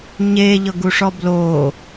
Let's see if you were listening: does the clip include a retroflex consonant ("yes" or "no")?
yes